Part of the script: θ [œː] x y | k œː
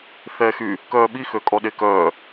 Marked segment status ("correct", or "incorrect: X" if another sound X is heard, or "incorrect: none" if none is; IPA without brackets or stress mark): incorrect: ɛː